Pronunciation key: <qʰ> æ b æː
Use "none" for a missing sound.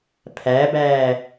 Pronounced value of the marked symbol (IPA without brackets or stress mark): pʰ